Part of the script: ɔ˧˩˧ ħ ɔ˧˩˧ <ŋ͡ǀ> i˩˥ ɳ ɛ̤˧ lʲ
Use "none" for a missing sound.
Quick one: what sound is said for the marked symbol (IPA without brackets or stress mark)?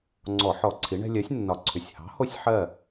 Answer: ǀʰ